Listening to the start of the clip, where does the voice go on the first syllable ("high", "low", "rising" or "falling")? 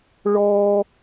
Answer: high